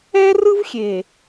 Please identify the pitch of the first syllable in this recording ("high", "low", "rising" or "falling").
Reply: high